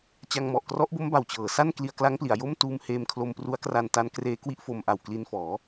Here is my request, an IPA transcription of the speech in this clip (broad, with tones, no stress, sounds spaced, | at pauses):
t͡ɕ a˧ ŋ m ɔ˨˩ ʔ k r ɔ˦˥ ʔ b o˦˥ m b a˨˩ w t͡ɕ ɤː˩˦ s a˥˩ n k l i˧ a̯ k l a˦˥ ŋ p l i˩˦ a̯ j o˥˩ m t uː˧ m h eː˧ m kʰ l o˧ m p r u˦˥ a̯ k r a˧ n t a˦˥ n k r eː˦˥ k w i˦˥ ʔ f o˧ m ʔ a˨˩ w k l i˧ n f ɔː˩˦